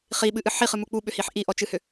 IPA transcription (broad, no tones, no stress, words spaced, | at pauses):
χiɓɨʔɨ ħiχɨmu k͡puɓʏhiħ ʔiʔɔt͡ʃɨhʏ